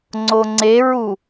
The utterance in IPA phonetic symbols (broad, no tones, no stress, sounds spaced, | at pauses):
ŋ͡ǀ o ŋ͡ǀ e ɹ u